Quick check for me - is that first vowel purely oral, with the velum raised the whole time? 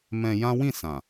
no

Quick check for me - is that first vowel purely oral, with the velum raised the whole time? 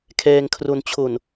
yes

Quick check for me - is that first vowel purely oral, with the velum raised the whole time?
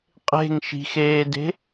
yes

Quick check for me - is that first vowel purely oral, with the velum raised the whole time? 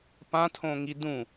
no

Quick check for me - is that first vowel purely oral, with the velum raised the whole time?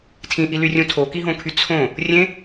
no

